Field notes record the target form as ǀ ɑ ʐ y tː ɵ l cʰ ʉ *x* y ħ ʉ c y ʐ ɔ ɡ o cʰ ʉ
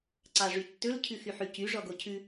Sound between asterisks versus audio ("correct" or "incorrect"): correct